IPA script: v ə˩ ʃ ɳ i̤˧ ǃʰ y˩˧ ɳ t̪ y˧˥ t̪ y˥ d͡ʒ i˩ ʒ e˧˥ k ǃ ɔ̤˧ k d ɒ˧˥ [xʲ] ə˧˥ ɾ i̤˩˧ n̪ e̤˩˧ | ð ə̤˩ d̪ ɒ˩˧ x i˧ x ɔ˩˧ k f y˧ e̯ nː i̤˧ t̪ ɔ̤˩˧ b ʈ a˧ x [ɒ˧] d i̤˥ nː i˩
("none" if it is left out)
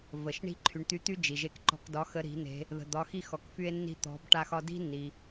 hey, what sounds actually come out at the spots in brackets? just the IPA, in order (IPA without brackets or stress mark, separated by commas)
x, ɒ˧